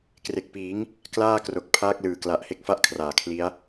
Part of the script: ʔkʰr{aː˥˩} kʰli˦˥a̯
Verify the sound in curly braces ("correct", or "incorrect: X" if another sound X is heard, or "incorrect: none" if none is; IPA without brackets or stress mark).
incorrect: aː˨˩